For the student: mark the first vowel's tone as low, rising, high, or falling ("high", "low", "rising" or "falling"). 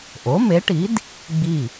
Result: rising